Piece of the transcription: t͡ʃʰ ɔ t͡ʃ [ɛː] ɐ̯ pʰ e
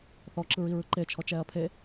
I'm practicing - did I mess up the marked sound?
no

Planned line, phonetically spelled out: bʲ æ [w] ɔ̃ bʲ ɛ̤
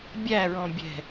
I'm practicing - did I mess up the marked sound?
yes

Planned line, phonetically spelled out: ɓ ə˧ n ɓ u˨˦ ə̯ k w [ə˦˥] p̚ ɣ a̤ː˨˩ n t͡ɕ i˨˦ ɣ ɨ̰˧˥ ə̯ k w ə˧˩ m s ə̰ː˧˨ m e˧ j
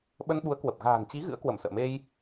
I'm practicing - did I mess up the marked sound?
yes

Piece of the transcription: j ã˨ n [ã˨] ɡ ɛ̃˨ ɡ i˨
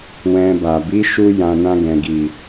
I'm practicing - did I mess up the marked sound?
yes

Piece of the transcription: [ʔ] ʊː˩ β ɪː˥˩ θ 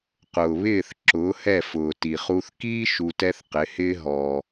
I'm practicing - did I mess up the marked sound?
yes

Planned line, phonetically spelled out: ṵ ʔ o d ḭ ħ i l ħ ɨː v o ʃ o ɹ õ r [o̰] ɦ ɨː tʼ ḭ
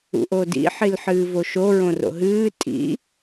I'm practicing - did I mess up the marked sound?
no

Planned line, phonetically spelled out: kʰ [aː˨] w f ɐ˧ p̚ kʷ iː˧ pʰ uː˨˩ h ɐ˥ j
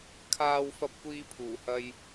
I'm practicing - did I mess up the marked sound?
no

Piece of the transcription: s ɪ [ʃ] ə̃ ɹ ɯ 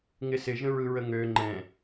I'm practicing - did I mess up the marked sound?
yes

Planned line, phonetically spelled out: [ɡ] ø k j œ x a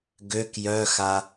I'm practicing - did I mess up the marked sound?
no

